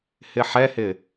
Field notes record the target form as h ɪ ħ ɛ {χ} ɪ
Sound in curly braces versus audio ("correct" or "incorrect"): incorrect